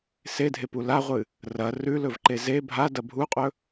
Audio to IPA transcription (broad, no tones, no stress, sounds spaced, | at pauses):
s e dʱ e p u l a ʁʷ ɨ | r ɐ r ʉ l ɵ v ǃ e z e bʱ a d ɐ bʱ u qʼ ɵ